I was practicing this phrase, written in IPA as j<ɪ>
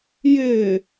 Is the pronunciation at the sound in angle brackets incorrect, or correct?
correct